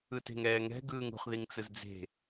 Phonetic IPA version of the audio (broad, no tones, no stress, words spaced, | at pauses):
ɯte̤ŋɛːŋɛ̤ ɡɯːŋṳχ ðiŋt͡sɯzd͡ze̤